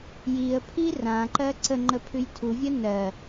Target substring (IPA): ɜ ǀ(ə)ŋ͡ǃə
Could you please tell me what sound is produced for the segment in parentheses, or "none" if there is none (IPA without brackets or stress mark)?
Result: ə